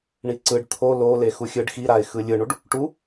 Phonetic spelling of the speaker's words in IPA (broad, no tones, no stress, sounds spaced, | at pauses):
ɳ i ǀ ɯ ɖ t̪ʰ o l o l e x u xʲ ɯ ɖ x i ɾ a ɪ̯ x ɯ lʲ ɯ ɳ u ɖ | ʈ u